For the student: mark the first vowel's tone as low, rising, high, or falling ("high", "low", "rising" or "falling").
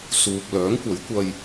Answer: low